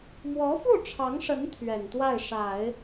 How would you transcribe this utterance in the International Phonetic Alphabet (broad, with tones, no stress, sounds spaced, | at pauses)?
m w ɔ˧˥ f u˥˩ ʈ͡ʂʰ ɑ˧˥ ŋ ʂ ə˧˥ n t̪ʰ ɥ ɛ˨˩ n t̪ w a˥˩ ɪ̯ ʂ a˨˩˦ ɪ̯